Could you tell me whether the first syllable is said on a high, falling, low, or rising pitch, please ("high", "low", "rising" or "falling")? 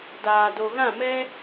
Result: low